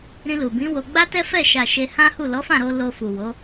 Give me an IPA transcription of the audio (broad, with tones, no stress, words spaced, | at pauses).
ɾĩ˧lu˨bĩ˨˦wo˧ ɡ͡ba˦tɛ˦fɛ˦˨ ʃa˨ ʃe˧hã˦hu˦˨ lɔ˨˦fã˦˨ɾo˧ lo˧fu˨wo˨˦